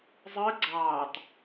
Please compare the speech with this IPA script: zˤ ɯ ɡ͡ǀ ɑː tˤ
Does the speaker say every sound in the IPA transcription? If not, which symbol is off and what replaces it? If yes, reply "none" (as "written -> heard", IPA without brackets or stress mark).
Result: none